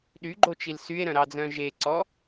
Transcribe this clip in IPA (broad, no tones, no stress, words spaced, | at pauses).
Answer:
ɗyɡ͡ǃot͡ʃil sye̯ɾœ̃ɾɑd͡zœ̃ ʒeǀɔ